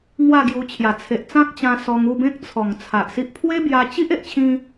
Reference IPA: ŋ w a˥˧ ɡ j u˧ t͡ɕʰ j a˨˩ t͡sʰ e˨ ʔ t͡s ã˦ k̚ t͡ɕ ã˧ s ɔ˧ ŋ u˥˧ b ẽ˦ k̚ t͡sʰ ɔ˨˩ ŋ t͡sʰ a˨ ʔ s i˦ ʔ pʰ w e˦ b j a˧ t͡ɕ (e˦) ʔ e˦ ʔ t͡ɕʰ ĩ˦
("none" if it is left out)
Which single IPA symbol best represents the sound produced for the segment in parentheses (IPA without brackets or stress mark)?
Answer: i˦